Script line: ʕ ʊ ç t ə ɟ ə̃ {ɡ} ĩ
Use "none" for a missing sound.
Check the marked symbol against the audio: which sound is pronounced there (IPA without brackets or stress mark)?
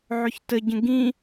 ɡ